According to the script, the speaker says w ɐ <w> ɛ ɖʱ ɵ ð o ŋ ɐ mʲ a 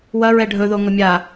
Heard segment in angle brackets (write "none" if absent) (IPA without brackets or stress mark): ɹ